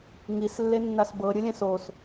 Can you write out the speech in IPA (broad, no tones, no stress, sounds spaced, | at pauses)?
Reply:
ŋ i s lː e nː a s b ɤ ɾʲ ɯ lʲ ɛ̃ s o s